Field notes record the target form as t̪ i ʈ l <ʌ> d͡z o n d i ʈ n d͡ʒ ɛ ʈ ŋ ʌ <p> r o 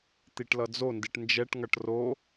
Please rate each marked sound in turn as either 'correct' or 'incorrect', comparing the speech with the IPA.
correct, incorrect: ʈ

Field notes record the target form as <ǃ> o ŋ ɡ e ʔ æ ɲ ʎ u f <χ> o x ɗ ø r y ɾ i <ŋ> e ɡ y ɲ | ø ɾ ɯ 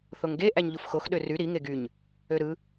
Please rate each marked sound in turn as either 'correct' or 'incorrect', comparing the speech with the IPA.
incorrect: θ, incorrect: x, correct

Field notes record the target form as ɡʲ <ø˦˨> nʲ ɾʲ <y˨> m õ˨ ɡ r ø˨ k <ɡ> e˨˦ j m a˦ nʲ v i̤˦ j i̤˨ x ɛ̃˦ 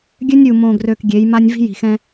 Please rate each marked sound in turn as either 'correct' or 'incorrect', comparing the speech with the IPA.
incorrect: ø˦, incorrect: u˨, incorrect: ɡʲ

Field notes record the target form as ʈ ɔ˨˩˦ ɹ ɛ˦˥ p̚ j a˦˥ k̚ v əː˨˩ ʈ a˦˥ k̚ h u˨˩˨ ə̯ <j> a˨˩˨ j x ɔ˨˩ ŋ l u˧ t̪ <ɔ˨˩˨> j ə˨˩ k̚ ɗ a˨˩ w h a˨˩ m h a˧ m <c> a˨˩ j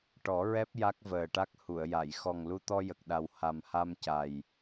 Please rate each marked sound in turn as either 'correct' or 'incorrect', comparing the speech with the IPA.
correct, incorrect: ɔ˧, correct

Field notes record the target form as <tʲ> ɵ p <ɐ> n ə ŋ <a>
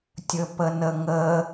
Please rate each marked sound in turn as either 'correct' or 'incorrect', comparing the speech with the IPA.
correct, incorrect: ə, incorrect: ə

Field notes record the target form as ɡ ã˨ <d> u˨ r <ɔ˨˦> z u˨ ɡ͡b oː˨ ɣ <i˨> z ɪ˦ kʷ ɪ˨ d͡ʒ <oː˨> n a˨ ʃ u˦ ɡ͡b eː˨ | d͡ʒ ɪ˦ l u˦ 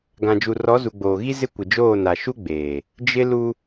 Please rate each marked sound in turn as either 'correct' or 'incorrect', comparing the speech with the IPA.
incorrect: d͡ʒ, correct, incorrect: i˦, incorrect: oː˦˨

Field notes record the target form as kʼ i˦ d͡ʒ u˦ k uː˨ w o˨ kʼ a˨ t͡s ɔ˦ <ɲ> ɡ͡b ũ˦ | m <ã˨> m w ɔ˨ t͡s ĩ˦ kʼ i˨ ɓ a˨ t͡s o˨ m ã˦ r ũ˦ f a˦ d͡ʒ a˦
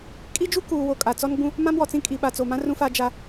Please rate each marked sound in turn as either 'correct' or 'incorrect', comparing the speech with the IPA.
incorrect: n, incorrect: ã˦

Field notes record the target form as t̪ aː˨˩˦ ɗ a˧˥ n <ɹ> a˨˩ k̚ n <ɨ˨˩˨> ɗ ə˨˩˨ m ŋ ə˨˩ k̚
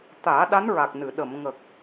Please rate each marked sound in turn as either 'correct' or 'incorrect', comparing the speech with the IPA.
correct, correct

